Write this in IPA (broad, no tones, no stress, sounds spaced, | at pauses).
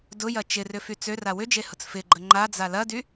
d ʊ j ɐ t͡ʃ ɪ r ʏ f y t͡s ø r a w ʏ d͡ʒ e h ʊ t͡s f ɪ ɡ͡ǃ ə ŋ͡ǃ a d͡z a l ɐ d y